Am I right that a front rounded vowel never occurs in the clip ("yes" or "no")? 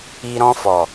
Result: yes